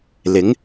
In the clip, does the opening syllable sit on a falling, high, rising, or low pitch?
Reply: rising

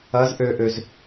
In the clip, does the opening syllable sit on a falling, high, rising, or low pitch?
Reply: rising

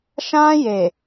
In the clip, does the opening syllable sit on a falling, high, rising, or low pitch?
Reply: high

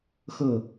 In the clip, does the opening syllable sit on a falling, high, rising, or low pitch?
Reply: falling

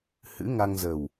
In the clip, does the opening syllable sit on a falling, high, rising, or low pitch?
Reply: rising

